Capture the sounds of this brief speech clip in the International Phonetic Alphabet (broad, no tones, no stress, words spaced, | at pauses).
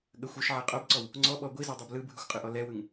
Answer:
ɠəxʷ ɵʃʕɛ qʼobǀɔw | ŋ͡ǀɔɓɔ ɡʷizodˤob lɯbʱɯxʷqʼɯʔɔ lɛwɯŋ